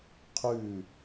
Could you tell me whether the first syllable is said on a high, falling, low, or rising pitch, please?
falling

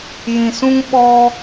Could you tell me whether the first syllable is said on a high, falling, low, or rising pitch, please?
low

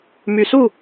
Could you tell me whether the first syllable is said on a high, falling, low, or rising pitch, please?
low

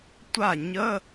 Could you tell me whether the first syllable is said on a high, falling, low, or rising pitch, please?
falling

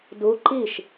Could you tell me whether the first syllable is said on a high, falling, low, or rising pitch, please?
rising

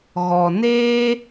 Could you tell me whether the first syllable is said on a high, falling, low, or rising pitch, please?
low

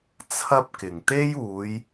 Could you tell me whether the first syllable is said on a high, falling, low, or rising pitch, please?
high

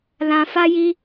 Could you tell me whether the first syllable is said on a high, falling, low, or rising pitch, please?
low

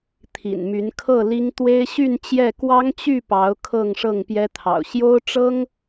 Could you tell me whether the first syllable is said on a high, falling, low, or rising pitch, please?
low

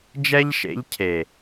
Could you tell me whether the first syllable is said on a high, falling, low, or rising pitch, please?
high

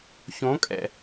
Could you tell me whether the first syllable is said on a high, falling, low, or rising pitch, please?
rising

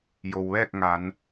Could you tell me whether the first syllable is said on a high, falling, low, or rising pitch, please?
low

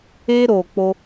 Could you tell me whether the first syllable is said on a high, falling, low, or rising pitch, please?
high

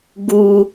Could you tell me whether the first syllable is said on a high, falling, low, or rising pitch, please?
high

